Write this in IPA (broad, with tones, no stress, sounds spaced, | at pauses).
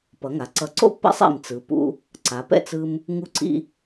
p ʌ˩˧ ŋ a˩˧ ǀ ʌ˧˩ ǀ o̰˥ pː ɛ̰˥ sˤ ḭ˧˩ m t͡s ɯ˩˧ p ṵ˧ | ǀ a˩˧ p ɛ̰˥˧ t͡s ɯ˧ m | ŋ u˧ ǀ ḭ˧